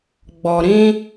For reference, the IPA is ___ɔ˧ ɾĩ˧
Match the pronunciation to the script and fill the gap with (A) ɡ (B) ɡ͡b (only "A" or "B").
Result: B